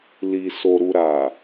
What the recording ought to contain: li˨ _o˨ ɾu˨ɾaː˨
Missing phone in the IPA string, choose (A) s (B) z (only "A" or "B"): A